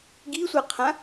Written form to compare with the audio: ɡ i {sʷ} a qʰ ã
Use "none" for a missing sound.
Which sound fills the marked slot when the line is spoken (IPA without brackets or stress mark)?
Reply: sʷ